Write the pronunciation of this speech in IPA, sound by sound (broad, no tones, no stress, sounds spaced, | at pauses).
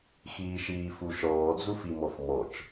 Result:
x iː ʃ iː f u ʃ ɔː d͡z u f i m ɔ f m ɔ t͡ʃ